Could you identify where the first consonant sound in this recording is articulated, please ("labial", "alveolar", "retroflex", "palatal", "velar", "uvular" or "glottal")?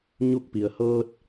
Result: palatal